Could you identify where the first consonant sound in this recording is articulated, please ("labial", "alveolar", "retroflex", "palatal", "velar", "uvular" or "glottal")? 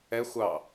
velar